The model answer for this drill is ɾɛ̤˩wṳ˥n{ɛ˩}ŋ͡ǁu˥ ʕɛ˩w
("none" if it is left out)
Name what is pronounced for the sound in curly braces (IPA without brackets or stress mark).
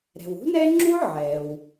ɛ˥